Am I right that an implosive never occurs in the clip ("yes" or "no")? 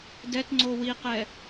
yes